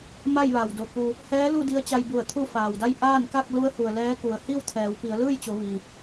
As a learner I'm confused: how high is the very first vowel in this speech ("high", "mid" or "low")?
low